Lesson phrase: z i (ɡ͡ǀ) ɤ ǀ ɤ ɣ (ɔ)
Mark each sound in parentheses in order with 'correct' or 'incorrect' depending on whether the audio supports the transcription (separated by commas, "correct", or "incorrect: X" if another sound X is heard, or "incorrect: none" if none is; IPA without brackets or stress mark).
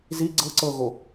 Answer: correct, incorrect: o